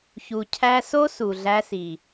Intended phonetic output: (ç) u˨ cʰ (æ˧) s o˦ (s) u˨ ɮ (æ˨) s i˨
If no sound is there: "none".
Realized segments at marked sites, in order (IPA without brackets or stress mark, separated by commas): ç, æ˧, s, æ˧